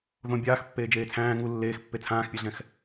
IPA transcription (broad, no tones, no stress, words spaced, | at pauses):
ðõ bʲaːx pːeːd͡ʒeːt͡sʰæ̃ː ŋu lːeːxpːe t͡sʰãːxpʲɛɮɛ̃x